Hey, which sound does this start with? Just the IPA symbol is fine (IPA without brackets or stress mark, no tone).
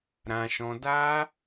ɾ